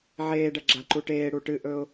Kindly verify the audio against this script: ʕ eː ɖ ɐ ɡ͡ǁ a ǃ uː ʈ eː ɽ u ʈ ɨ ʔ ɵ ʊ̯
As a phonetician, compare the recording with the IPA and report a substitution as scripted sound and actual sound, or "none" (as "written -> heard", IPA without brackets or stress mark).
uː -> u